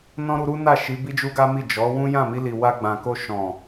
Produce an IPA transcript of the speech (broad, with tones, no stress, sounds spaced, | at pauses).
n ɔ̃˦ ɾ u˧ ɾ u˦ n a˦˨ ʃ i˨˦ b i˦ d͡ʒ u˦ ɡ a˦ m i˦˨ d͡ʒ ɔ˨˦ w ũ˦ j ã˦˨ m i˧ l i˨ w a˧ ɡ͡b ã˨ k o˧ ʃ ɔ̃˨